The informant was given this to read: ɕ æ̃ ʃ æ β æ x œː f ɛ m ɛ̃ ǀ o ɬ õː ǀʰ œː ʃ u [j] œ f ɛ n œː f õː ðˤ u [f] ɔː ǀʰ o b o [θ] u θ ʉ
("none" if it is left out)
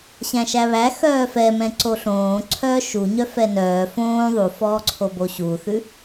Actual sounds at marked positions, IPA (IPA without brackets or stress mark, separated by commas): ɲ, f, ɕ